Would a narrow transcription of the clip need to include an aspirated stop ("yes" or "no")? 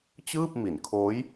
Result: yes